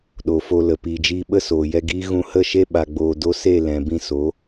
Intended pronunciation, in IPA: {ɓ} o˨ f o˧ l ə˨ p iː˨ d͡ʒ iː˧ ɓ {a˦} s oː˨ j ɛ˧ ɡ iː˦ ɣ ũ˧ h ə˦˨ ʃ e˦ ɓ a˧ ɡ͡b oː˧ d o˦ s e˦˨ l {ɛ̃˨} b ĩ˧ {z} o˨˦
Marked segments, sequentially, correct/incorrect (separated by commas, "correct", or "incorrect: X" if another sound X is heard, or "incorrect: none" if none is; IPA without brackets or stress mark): incorrect: ɗ, incorrect: ə˦, correct, incorrect: s